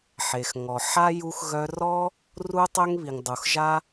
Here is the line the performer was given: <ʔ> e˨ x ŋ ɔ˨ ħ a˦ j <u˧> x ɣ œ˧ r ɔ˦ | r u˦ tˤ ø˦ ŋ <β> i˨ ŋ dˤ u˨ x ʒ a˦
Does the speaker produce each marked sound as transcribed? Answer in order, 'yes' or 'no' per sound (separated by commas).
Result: no, yes, yes